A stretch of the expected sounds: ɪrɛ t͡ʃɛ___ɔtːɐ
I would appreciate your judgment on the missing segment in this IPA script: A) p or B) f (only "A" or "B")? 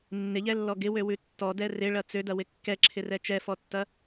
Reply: B